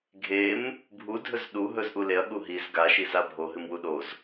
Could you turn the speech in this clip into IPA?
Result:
ɡʱ e m | bʱ u dʱ ɵ z ɗ u ɦ ɵ z ʔ u l e ɐ̯ ɠ u ɦ i z ɡ a ʃ i z a bʱ o ɦ ɨ m w u ɗ o z

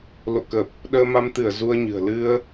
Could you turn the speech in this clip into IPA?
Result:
l o̰˧˨ k ə˨˩ p̚ | ɗ əː˧ m a˧ m t̪ ɨ˧˩ ə̯ z u˧ ə̯ ɲ ɨ̤˨˩ ə̯ l ɨ˧ ə̯

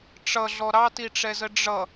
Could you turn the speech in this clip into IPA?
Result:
ʈ͡ʂ ʌ ɮ ɔ ɾ ɑ t i ʈ͡ʂ ɛ z ə ɖ͡ʐ ʌ

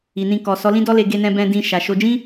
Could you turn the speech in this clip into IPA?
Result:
i˨ n ĩ˧ k ɔ˨ s ɔ˨˦ l ĩ˦ d ɔ˦ l e˧ ɡ e˧ n ɛ̃˧ b ɛ̃˧ d ĩ˧ ʃ a˨ ʃ o˧ d͡ʒ ĩ˦

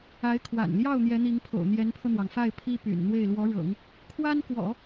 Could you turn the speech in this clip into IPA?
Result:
a˧˥ ɪ̯ kʰ w a̰˨˩ n l j ɑ˥˩ ʊ̯ n̪ j ɛ˧˥ n̪ i˧˥ ŋ pʰ o̰˨˩ ʊ̯ n̪ j ɛ˧˥ n pʰ ɤ˧ n̪ w ɑ˩ ŋ f a˥˩ ɪ̯ pʰ i˥ p y̰˨˩ n n̪ w e˥˩ ɪ̯ l w ɔ˧˥ ɻ ɤ̰˨˩˦ ŋ | kʰ w a˥ n k w ɔ̰˨˩˦

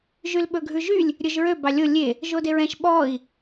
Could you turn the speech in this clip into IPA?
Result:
ʒ y l ɓ ɵ ɡʱ ʉ ʒ y lʲ | ɾʲ ɵ ʒ ɹ ø b ɑ lʲ o lʲ e | ʒ o d e ɹ ɛ̃ ʃ ɓ ɔ i̯

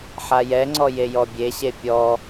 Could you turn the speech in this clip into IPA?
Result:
ħ a j ɛ ŋ͡ǀ ɔ j e j ɔ bʲ e ɕ e pʲ ɔ

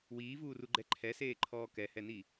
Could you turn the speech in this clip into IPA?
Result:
w iː v uː r u ɡ͡ǃ ɛ ǃʰ ɛ s eː ǃʰ ɔː k ɛ h ɛ n i

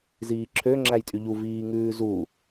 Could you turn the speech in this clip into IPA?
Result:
z iː ǁʰ ø ŋ͡ǁ æ j tʼ y ʎ u v iː ŋ ʉː z u

